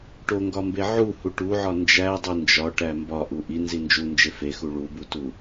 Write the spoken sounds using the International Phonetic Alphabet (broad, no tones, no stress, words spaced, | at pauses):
ʈoŋɡɒmbe ʕuhu ʈuʕɒ nd͡ʒædˤi nd͡ʒɒʈæ mbɒʔu ʔinzi nd͡ʒund͡ʒe fexu ɭubutu